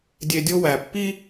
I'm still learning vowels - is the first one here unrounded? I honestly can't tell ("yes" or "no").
yes